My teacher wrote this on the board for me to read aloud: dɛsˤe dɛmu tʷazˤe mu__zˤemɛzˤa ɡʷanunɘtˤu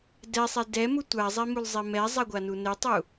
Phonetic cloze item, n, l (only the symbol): l